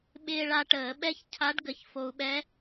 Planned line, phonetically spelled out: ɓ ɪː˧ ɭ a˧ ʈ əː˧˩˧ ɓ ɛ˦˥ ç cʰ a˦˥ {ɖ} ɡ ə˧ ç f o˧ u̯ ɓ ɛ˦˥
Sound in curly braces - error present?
no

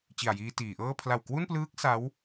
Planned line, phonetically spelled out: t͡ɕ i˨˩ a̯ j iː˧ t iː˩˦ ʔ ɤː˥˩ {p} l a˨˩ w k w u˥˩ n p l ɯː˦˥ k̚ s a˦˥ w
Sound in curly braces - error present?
yes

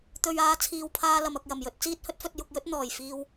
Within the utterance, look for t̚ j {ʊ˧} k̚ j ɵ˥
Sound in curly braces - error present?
no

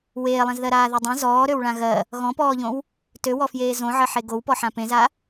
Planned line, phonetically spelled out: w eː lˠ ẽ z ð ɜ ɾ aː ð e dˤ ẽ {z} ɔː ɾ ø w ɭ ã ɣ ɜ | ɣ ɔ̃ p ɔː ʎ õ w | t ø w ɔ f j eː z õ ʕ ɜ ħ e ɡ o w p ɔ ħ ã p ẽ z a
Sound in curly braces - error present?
no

